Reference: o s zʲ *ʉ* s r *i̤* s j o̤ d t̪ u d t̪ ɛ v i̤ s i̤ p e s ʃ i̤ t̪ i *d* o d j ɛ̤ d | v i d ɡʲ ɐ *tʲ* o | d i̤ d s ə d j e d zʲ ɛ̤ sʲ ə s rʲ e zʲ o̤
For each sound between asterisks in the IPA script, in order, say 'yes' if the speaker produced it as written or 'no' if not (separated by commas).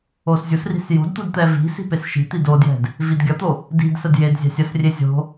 no, yes, yes, no